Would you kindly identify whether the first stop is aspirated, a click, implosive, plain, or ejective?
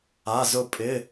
ejective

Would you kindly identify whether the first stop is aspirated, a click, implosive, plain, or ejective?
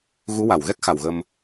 plain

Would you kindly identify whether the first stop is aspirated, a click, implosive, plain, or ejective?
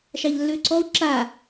click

